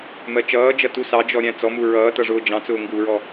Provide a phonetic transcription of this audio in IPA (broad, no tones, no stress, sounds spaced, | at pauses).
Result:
m ɜ t͡ʃ ʌː d͡ʒ ʌ t u s ɑ d͡ʒ ɔ ɾʲ æ̃ t͡s ɔ m u ɹ ʌː t ʌ ʐ ʊː d͡ʒ ɑ̃ t͡s ʊː ŋ ɡ u ɹ ɔ